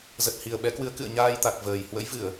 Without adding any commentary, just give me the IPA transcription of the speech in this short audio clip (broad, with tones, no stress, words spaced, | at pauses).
zə˨˩t̚hi˨˩ə̯ɓɛ˨˦kwɨ˨˦ə̯ kɨ̰˧˨ə̯ɲaː˧jt̪a˨˩k̚ vəː˨˩j hwə̰˧˥jvɨ˧˩˨ə̯